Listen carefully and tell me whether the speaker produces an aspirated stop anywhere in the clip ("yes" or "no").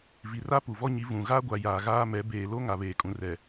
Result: no